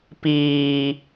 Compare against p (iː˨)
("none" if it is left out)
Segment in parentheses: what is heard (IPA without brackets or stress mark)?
iː˨